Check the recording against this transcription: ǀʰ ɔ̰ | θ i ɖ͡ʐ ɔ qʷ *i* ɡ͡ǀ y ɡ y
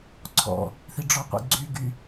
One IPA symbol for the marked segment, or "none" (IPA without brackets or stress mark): ḭ